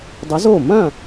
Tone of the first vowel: rising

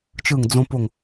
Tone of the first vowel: falling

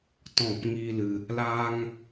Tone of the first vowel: falling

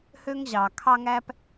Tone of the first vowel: high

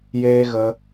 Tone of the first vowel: high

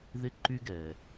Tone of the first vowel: high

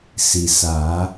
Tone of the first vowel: low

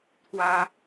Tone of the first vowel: high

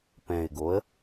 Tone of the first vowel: low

